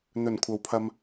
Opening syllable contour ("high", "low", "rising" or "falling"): low